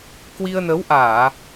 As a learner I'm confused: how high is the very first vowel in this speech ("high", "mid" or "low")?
high